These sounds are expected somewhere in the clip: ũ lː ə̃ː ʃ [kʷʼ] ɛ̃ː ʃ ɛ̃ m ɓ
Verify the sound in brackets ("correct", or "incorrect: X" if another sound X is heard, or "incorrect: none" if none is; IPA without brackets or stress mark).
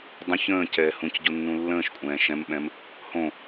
correct